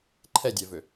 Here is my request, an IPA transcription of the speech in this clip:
ǃʰ ɛ dʲ ɛ v ø

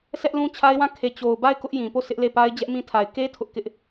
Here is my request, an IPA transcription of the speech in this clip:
sʰ ɛ˦ ʔ l ũ˦ t͡ɕʰ a˦ ɪ̯ w ã˦˨ kʰ e˨ t͡ɕ o˨ ʊ̯ b a˦˨ ɪ̯ k ʊ˦ ʔ j ĩ˨ p o˦˨ s ɪ˦ ʔ l e˦˨ p a˦ ɪ̯ d͡ʑ ɛ˦ ʔ m ĩ˦ tʰ a˨ ɪ̯ k e˦ tʰ ʊ˦ ʔ k ɪ˦ ʔ

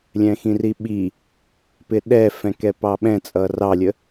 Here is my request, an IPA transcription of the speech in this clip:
lʲ ɛ̃ x ĩ r i ɓ i | p ɪ ɗ ɛ f ɛ̃ k ɛ p ɑ ɓ ɛ̃ t͡sʼ ʌ r ɑ lʲ ə

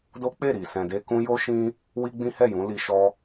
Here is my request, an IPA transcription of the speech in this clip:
d o˦ k͡p e˦˨ ɾ i˨ s ɛ̃˨ d e˧ k ũ˧ j o˦ ʃ ĩ˦ | w i˦ ɡ͡b ĩ˦ h ɛ˦˨ j ũ˨˦ l i˧ ʃ ɔ˦

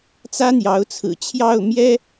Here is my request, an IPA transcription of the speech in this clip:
t͡s ä˥ n̪ j ɑ˧˥ ʊ̯ t͡sʰ ɹ̩˨˩ t͡ɕʰ j ɑ˥˩ ʊ̯ m j ɛ˥

